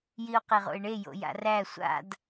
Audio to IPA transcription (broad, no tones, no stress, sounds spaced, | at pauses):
j i o̯ q e ʁ o̰ e̯ ɳ e j o̰ j a̰ r æ sʷ a̰ d